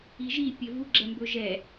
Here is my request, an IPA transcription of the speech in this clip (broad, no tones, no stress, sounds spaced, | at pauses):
i ʒ i pʲ ɘ v u ɡ͡ǁ ɛ m b ɵ ʒ ɛ